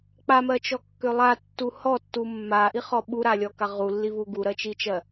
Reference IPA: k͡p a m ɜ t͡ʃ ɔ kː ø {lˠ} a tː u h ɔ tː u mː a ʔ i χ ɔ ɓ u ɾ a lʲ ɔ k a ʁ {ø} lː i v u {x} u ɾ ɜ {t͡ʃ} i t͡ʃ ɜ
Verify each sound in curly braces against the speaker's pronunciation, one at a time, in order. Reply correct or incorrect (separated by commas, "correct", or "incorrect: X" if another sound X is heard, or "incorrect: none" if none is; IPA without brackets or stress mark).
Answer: correct, incorrect: u, incorrect: ɡ, correct